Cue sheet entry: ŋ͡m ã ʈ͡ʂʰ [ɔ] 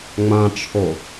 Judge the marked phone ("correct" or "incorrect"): incorrect